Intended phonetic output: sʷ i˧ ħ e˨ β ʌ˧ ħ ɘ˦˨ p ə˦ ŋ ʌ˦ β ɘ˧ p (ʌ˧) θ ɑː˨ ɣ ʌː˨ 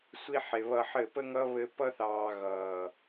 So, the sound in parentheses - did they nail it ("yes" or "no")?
yes